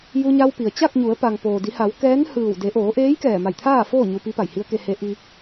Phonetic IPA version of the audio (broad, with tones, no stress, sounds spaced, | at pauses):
j u˧ ɲ a˧ w p i˩ ə̯ t͡ɕ a˥˨ k̚ ɲ u˩˧ ə̯ p a˩ ŋ p oː˩ d i˩˧ h a˩˧ w k ɛː˧˥ n h ɯː˧˩ w d e˩˧ ʔ oː˩˧ ʔ eː˧˥ j k ɛː˧˩ m a˧˩ j t̪ʰ aː˥˨ f oː˥˨ ɲ u˧ p i˧˥ p a˧˩ j h i˧˥ ə̯ k e˧ h e˧˥ ʔ i˧